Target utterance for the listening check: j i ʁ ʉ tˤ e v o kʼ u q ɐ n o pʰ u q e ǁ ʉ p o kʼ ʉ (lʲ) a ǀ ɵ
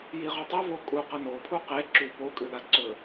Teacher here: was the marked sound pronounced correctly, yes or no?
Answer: no